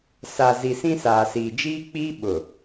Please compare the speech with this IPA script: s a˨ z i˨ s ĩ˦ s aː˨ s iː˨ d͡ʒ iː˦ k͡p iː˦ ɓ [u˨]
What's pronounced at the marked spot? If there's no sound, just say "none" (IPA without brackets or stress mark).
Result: ʊ˨